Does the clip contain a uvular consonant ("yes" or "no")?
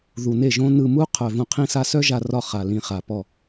yes